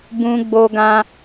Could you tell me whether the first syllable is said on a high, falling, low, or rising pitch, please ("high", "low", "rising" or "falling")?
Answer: high